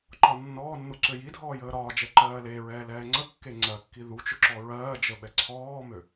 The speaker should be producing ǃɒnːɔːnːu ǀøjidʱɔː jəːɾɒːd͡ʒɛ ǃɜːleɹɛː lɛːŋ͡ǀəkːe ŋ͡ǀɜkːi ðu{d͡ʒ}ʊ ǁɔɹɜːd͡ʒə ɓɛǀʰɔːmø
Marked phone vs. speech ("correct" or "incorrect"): incorrect